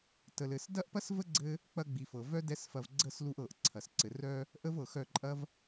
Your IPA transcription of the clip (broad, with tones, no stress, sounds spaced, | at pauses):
t ə˨ l ɘ˨ s d ɐ˦ ʔ p ɐ˦ s v ə˦ ɡ͡ǀ ɘ˦ | k͡p ɐ˧ ɡ͡b i˨ f ɤ˨ v œ˦ d ɛ˦ s f ɐ˧ v ɡ͡ǀ ə˦˨ s l u˧ ʔ ɤ˨ ʔ ǀʰ ɐ˨ s ǀ ɘ˨ r œ˧ | ʔ ə˦ v ɤ˨ x œ˦˨ ǃʼ ɐ˦ v